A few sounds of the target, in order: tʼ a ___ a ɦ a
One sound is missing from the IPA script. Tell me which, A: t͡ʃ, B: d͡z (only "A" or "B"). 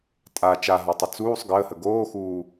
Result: A